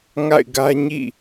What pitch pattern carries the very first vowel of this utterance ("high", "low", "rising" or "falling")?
falling